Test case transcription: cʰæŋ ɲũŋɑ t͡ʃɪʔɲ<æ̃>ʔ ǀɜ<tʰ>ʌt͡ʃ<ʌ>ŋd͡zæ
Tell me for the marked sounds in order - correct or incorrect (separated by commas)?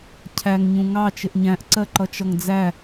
correct, incorrect, correct